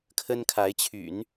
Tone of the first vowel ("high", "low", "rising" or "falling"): high